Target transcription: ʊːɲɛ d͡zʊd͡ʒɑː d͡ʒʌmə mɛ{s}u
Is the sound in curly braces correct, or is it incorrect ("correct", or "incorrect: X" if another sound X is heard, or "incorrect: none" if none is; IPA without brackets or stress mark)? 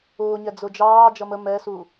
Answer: correct